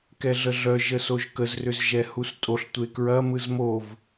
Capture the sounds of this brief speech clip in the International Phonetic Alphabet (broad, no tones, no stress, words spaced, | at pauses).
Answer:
kɛɮəɮœ ʒəsoʒkəz rʏzʒɛhustʼoɬ tʷekɹɐ mɯzmov